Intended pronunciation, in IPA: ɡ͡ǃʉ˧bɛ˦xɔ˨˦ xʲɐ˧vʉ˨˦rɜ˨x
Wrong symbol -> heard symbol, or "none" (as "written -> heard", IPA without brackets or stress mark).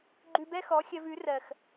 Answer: none